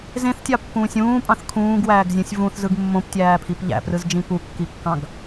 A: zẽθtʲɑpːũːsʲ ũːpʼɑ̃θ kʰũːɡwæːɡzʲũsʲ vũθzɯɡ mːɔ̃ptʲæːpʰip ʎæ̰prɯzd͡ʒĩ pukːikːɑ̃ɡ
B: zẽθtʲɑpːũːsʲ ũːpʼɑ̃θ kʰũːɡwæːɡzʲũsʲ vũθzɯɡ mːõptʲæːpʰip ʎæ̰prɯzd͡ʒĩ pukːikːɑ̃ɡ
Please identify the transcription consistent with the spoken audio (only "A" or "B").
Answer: B